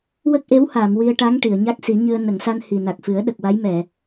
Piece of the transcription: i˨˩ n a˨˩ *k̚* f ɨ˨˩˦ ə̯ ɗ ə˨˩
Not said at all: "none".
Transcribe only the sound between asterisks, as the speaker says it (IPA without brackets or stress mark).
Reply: k̚